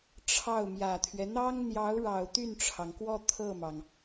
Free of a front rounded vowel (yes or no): no